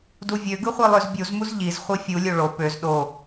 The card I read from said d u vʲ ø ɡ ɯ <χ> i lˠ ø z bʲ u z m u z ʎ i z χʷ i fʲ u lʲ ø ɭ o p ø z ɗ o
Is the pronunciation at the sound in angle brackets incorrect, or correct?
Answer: incorrect